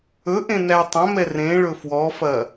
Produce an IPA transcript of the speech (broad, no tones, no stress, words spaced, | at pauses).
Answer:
ɵʔẽ nætˤɐ̃mɛ rẽ ɭɵfwɔfɐ